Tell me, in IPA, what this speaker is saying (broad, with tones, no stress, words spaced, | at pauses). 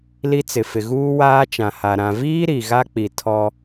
li˦t͡sɪ˨fɪ˨ ɣuː˦waː˦ t͡ʃã˨ha˨ ɾã˨ viː˦ ɾi˨ɣa˦k͡pi˨ tʰɔ˦